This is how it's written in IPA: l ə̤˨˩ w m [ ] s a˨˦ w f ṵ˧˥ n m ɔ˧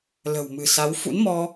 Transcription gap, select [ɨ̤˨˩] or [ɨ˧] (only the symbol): ɨ̤˨˩